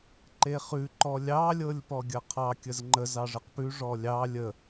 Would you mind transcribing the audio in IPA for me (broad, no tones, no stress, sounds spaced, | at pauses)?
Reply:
ǃ e χ ʉ ǃ ɔ lʲ ɑ lʲ ɤ lʲ p ɔ ɡʲ ɐ qʰ ɑ kʲ ə z ŋ͡ǃ ə z ɑ ʐ ə q p ʉ ʐ ɔ lʲ ɑ lʲ ə